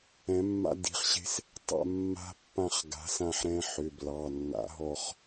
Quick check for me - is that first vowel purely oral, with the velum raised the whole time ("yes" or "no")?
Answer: no